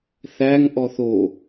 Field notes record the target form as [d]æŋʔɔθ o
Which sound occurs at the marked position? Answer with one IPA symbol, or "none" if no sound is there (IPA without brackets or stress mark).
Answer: θ